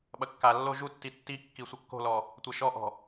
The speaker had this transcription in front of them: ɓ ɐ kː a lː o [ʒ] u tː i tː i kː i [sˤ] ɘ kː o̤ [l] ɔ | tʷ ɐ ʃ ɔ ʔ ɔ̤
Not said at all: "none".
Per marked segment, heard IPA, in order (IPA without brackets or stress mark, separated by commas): ʒ, sʷ, l